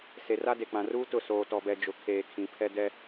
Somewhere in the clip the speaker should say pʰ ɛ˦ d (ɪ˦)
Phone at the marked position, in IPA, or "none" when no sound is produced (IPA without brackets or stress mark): ɛ˦